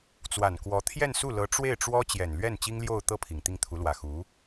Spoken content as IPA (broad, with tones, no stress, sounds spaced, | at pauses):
t͡s w a˨˩ n k w ɔ˧˥ t̪ʰ j ɛ˥˧ n s u˥˩ l ɤ˧˥ ʈ͡ʂ w e˥˩ ɪ̯ ʈ͡ʂ w ɔ˥ t͡ɕ j ɛ˨˩ n l ɥ ɛ˥˩ n t͡ɕ i˥ ŋ l j o˥˧ ʊ̯ t̪ ɤ˥˩ pʰ i˨˩ ŋ t̪ i˥˩ ŋ t̪ʰ u˧˥ l w ä˨˩ x u˧˥